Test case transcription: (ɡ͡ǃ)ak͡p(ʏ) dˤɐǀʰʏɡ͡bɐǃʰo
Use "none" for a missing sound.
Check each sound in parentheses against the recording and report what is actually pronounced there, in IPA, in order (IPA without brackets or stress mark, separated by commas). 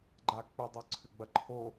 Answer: ɡ͡ǃ, ʏ